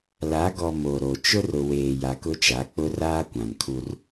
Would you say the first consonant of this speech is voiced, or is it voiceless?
voiced